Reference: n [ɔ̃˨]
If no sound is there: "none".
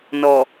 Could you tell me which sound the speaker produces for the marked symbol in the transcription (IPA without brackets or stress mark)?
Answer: ɔ˨